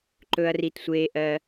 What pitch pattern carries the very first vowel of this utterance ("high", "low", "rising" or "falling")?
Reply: low